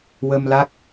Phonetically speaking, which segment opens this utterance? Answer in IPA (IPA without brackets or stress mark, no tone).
w